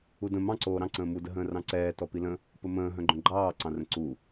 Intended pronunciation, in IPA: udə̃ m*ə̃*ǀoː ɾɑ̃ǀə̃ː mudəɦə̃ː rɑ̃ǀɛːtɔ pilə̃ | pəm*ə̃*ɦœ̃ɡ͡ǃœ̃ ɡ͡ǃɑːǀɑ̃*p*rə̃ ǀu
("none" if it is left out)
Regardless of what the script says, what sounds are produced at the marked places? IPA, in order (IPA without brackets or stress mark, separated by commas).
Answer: ɑ̃, ə̃ː, none